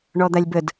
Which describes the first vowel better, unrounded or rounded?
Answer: rounded